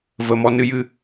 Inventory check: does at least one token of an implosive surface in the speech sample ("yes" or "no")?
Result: no